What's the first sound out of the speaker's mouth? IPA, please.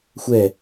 xʷ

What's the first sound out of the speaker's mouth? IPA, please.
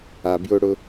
a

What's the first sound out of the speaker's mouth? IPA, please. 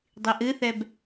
dˤ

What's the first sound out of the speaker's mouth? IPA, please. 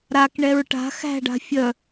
ɾ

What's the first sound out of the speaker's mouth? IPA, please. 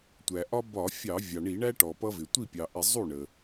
tʷ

